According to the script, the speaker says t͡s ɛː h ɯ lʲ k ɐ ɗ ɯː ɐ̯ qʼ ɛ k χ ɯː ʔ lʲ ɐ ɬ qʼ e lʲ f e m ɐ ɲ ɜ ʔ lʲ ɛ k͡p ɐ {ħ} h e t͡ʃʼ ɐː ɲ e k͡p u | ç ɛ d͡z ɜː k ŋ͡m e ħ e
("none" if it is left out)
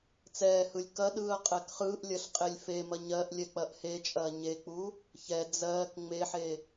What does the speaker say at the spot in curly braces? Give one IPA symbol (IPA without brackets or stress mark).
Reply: ʔ